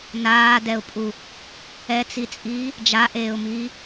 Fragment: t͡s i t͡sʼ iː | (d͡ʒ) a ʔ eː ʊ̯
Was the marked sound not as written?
no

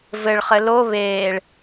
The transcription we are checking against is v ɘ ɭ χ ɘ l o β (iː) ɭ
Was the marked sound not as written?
yes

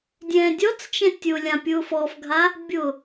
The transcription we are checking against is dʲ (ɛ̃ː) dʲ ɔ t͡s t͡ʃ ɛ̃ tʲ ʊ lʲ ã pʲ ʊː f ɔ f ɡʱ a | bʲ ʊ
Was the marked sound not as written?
no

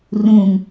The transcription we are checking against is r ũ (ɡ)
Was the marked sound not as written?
yes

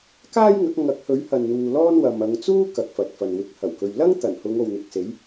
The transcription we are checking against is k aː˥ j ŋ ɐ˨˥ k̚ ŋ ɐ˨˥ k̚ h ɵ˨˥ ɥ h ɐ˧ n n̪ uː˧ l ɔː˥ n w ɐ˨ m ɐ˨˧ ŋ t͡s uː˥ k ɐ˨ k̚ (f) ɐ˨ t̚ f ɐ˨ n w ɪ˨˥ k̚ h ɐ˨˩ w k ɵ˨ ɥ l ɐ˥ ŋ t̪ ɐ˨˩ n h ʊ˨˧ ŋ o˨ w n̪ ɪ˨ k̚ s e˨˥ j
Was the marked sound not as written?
no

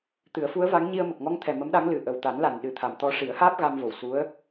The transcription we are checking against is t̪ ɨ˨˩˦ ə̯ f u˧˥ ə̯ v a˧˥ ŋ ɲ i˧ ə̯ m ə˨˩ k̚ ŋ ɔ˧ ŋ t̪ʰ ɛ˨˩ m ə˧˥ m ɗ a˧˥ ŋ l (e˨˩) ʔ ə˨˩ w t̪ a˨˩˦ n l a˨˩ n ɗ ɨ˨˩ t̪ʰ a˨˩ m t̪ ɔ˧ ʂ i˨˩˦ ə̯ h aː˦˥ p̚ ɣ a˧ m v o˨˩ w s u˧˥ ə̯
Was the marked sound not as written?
yes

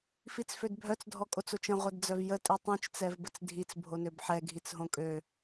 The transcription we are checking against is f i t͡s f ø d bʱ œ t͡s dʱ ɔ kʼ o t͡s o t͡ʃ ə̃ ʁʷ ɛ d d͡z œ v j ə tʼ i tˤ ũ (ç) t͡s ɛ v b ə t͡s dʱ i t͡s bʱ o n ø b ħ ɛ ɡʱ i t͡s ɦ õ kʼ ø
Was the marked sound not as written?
yes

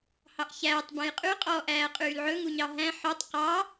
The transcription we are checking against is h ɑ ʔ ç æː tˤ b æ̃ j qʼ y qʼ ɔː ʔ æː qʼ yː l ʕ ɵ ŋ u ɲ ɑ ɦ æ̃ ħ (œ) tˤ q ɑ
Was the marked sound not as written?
no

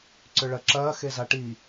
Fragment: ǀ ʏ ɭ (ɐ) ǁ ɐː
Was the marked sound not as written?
no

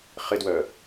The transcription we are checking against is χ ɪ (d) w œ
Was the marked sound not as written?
no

